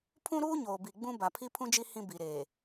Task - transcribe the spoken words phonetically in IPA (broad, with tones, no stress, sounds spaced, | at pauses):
pʰ ũ˦ ɾ uː˦ ɲ oː˨ b i˨ ɡ͡b ũ˦ b a˨ pʰ i˦ pʰ ũ˦ d͡ʒ i˦ h ĩ˦ b i˨ ɾ eː˨